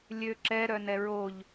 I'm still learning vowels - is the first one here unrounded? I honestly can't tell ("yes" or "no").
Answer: no